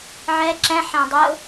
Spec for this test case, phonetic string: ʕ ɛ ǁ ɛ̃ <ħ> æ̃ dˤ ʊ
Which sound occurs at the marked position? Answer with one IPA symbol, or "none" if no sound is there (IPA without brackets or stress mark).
ħ